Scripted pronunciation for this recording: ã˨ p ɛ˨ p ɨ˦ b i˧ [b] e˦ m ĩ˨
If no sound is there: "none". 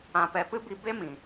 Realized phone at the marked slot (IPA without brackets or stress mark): b